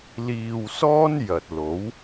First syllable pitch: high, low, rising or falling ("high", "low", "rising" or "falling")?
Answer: low